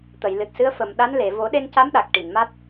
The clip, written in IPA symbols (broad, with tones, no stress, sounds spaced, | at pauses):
t̪ ə˨˩˨ j l ɨ˨˩ t̚ s ɨ˧˥ ə̯ f ə˨˩ m ɗ a˧˥ n l e˨˩˨ v o˨˩˦ ɗ e˧ n c a˧˥ m ɗ a˨˩ k̚ ʈ i˨˩˨ n m a˦˥ t̚